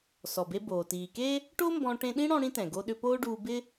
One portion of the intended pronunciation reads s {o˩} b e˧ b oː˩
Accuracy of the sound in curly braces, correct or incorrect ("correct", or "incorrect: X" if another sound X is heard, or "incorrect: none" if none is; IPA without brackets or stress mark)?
incorrect: ɔ˩